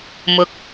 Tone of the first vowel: rising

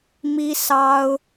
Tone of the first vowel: high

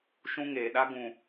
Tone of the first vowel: high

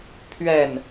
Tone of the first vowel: falling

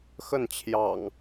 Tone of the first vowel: falling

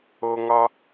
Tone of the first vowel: low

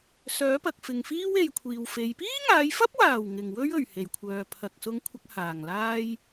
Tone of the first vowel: rising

